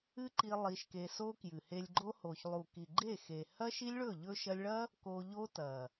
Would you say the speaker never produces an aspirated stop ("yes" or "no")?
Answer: yes